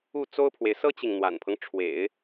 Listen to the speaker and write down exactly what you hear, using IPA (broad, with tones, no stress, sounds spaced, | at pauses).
u˥˩ t͡s o˥ ʊ̯ pʰ w e˨ ɪ̯ s ɤ˥ t͡ɕ i˨ ŋ n̪ w a̰˨˩ n pʰ ɤ˦ ŋ ʈ͡ʂʰ w ḛ˨˩˦ ɪ̯